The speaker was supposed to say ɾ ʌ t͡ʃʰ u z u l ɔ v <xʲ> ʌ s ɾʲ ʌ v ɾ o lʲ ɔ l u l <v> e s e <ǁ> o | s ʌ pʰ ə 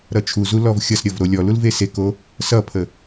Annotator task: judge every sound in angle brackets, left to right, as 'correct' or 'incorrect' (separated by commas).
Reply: correct, correct, incorrect